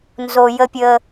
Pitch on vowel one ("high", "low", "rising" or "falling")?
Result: low